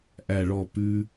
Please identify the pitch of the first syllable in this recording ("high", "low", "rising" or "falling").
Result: falling